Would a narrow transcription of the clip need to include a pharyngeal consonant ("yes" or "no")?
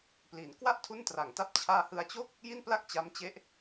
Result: no